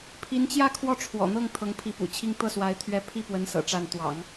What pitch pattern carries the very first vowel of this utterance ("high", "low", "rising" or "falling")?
rising